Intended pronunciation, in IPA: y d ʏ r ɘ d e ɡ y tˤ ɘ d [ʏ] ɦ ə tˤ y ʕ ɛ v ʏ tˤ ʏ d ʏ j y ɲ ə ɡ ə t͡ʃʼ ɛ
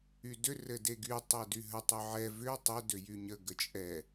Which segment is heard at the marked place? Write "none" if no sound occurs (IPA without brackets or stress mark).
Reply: y